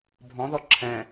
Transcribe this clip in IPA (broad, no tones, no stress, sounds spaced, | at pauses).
bʱ ɔ̃ ð ɔ ǁʰ ɛ̃